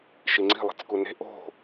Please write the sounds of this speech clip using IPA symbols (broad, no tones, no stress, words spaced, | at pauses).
ʃiŋ͡ǀi̤ lˠi̤t͡skune̤ ʔo̤